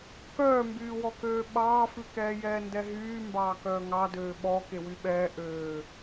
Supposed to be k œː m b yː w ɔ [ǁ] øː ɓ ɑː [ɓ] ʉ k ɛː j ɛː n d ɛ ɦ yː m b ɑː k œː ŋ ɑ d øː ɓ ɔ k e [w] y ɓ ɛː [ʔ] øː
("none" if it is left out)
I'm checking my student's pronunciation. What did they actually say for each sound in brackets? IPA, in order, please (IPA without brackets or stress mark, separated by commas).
k, f, w, ʔ